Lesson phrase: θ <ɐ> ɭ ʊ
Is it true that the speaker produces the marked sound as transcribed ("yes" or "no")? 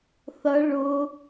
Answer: yes